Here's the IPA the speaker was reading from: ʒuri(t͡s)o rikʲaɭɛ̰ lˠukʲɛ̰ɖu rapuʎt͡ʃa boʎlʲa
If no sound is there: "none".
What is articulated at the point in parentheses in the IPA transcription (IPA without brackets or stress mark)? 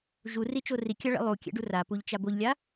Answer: t͡ʃ